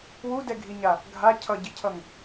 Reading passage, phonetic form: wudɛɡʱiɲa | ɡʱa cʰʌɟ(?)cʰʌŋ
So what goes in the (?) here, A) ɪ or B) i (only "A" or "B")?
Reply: A